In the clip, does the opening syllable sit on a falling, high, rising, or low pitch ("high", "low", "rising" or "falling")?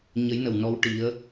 rising